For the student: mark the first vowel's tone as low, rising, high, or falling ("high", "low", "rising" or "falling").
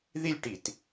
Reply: falling